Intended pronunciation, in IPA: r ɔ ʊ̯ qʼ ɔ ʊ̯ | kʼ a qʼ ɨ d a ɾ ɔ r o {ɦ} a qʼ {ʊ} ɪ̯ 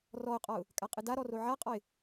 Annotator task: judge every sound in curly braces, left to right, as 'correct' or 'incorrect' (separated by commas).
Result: incorrect, incorrect